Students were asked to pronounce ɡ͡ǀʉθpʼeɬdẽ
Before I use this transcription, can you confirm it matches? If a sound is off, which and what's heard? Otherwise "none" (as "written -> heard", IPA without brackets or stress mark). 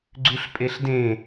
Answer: θ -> ɬ